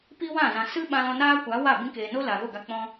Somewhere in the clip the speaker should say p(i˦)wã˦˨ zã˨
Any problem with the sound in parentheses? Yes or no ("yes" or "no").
no